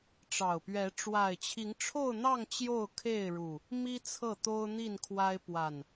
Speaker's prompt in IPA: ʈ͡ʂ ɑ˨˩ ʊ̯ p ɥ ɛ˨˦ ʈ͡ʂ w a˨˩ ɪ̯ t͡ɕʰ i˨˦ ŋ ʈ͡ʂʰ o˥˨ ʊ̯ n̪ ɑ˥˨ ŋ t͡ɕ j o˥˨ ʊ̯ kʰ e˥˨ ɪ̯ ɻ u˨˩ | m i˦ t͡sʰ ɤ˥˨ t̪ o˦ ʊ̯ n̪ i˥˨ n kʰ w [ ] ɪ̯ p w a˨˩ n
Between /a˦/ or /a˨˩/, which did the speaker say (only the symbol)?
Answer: a˦